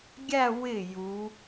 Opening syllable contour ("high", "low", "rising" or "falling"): falling